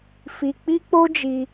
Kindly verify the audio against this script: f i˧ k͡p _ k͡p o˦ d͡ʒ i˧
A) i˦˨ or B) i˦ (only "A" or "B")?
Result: B